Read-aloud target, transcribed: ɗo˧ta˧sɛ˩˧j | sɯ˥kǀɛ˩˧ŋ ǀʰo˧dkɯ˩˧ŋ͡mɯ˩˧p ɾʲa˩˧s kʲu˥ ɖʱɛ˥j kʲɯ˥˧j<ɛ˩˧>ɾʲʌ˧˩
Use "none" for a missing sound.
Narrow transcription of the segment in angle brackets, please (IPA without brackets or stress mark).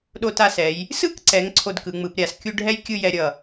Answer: ɛ˧